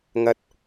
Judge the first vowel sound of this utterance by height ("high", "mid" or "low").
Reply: low